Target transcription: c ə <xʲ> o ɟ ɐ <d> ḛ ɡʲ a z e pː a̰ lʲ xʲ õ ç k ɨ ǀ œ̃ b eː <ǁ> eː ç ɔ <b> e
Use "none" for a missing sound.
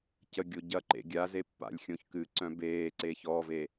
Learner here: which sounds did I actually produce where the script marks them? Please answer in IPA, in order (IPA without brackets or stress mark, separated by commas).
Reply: ɡʲ, ǃ, ǀ, v